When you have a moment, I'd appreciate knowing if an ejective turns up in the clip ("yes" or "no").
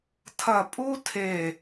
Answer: yes